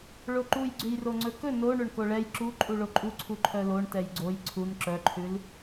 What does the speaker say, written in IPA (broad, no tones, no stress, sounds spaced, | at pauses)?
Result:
ɭ o ǃ u j ɡ͡ǀ ʉ j r o ŋ͡ǀ ɵ k ɵ n o ɳ ɵ ɳ k o ɭ ɛ j ǁ u ǃʼ u ɭ o ǃʼ u ǀʰ u ǃʰ œ l o ɳ t ɛ j ɡ͡ǀ o j ǀʰ u n ǁ œ ǃʰ ʉ l